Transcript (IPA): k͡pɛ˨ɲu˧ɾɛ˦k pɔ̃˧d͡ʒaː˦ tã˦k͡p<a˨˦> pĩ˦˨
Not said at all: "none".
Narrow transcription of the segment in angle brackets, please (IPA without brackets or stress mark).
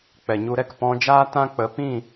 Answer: ə˨˦